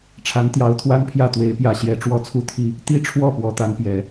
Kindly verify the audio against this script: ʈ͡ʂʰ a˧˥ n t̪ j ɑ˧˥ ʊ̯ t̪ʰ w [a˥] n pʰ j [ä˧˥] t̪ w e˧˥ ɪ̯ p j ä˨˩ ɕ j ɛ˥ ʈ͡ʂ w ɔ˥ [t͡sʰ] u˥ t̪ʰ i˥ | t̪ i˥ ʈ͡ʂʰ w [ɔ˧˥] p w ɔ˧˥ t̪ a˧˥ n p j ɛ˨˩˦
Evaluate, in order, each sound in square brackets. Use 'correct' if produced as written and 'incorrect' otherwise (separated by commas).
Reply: correct, incorrect, correct, incorrect